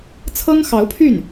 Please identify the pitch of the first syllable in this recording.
high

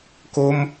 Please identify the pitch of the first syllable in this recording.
high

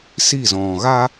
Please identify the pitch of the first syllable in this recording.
falling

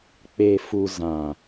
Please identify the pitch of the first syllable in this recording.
low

